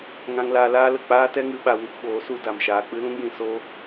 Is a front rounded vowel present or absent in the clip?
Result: absent